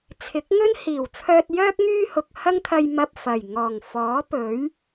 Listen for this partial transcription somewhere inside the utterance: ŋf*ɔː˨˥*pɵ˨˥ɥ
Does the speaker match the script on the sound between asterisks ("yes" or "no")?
yes